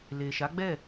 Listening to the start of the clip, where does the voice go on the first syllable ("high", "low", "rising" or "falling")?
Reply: low